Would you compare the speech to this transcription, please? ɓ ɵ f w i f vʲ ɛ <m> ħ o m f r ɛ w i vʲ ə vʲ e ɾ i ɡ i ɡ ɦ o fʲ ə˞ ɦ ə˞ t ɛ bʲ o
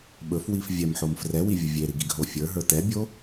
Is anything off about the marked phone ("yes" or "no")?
no